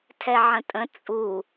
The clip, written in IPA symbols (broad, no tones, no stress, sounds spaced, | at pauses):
tʰ ɛ ʕ ə̃ tʼ ə̃ t͡sʼ u